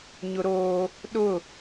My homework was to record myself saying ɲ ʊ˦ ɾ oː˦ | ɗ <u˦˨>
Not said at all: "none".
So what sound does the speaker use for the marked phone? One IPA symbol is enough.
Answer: ʊ˦˨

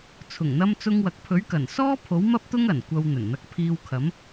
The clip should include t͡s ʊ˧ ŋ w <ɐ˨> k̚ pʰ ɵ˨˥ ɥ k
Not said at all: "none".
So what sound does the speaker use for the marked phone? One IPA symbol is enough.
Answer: ɐ˨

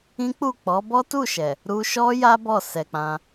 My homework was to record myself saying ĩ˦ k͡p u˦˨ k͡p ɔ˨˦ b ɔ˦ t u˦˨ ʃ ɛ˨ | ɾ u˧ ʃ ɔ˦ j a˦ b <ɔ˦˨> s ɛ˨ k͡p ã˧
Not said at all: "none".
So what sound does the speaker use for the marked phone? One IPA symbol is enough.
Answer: ɔ˦˨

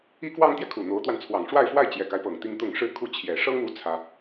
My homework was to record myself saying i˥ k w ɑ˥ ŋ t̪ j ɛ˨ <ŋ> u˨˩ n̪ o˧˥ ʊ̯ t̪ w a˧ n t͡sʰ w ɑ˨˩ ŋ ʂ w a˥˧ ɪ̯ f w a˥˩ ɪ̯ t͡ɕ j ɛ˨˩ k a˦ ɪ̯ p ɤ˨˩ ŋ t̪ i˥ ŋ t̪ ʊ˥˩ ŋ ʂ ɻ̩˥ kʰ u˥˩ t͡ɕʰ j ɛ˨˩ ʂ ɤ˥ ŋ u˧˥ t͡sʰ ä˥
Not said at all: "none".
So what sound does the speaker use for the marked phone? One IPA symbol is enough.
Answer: kʰ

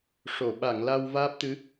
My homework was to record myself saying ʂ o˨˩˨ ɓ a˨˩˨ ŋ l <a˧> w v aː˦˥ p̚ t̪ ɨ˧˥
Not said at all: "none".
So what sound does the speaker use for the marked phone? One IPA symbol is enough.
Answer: a˧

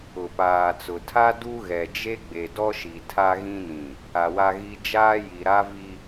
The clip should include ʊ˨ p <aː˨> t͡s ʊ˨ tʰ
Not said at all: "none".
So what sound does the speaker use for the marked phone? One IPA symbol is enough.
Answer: aː˨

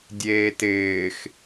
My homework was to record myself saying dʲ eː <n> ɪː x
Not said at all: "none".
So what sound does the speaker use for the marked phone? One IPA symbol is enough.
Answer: t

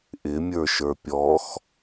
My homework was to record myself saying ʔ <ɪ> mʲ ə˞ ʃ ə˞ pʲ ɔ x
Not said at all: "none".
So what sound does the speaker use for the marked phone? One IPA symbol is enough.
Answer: ɪ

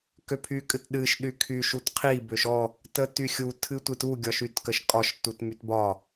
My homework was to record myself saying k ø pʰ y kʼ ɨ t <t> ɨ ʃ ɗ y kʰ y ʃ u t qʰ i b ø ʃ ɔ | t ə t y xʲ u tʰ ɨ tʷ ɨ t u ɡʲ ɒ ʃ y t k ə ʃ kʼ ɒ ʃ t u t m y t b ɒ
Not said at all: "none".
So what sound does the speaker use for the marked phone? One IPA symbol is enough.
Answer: ɗ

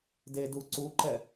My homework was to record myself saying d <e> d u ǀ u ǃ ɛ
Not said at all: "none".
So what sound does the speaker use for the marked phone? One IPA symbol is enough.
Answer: e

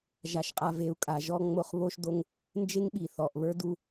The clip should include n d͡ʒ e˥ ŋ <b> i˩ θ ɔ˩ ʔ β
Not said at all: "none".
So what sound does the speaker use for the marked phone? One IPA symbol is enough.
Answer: ɓ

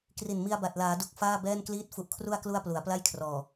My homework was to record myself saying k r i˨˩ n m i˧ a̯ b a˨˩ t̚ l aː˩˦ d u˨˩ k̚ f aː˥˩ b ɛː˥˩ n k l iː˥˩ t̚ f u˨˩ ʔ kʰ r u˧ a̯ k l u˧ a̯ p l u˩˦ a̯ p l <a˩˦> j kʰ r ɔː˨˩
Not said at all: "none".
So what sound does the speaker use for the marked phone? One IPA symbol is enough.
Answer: a˥˩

